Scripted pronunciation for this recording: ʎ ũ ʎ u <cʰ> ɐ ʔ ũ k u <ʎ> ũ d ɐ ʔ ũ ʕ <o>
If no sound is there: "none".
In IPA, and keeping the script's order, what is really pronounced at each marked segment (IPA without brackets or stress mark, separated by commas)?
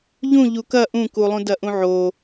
k, lˠ, o